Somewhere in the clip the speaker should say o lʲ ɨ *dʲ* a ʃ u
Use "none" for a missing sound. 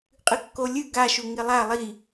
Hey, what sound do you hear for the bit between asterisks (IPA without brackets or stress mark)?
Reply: ɡ